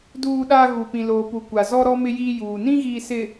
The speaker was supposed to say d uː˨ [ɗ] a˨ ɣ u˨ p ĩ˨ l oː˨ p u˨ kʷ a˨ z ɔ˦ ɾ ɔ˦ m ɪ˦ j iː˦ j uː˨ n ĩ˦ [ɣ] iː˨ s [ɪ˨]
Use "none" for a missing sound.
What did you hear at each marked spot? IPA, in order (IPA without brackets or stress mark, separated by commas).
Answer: ɗ, ɣ, ɪ˨